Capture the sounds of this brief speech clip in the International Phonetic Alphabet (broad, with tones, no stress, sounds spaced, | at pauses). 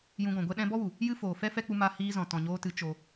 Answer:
j ũ˧ ɡ ɔ̃˨ ɡʷ ɛ˦ ɗ ɛ̃˦ b ɔ˦ w u˨ | j ɨ˦ f oː˨ f ɛ˦ f ɛ˦ k͡p u˧ m a˧ h iː˧ z ɔ̃˨ t ɔ̃˨ ɲ oː˧ t ɨ˨˦ t͡ʃ o˧